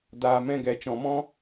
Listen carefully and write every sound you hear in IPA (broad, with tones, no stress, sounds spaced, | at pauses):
d aː˨ m ɛ̃˧ ɡ ɛ˨ t͡ʃ ɔ̃˨ m ɔ̃˦